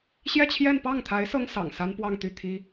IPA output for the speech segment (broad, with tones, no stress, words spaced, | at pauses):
ɕjɛ˥˧t͡ɕʰjɛ˥˧n pɑ˥˩ŋt̪ʰa˧˥ɪ̯ sɤ˥ŋsɑ̰˨˩ŋ sa˥npwɑ˥˧ŋ t̪y˥˩t̪ʰi˥